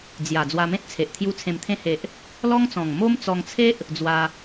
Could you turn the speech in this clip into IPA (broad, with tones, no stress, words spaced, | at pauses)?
d͡zja˨˩ d͡zwa˧mẽ˦t̚t͡sʰe˨ʔt̪ʰju˧ t͡sʰẽ˨˩mt̪ʰẽ˧he˨ʔ | lɔ˦ŋt͡sɔ̃˨˩ŋ mo˦m t͡sɔ˧ŋt͡sʰe˦ʔ | d͡zwa˧